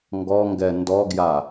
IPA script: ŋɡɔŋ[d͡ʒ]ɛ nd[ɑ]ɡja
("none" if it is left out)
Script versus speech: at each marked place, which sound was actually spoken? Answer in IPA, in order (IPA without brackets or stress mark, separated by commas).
ɡ, ɔ